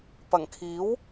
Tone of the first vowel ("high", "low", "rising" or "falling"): low